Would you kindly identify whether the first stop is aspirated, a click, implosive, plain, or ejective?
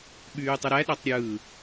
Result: implosive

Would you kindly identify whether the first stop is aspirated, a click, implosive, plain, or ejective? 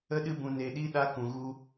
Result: implosive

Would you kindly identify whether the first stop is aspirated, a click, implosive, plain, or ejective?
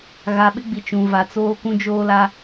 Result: implosive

